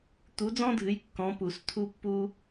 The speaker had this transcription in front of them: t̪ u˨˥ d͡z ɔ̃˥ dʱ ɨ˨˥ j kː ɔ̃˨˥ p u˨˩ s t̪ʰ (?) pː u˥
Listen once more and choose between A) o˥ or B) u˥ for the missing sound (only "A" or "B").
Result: B